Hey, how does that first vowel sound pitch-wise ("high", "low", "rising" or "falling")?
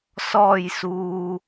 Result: low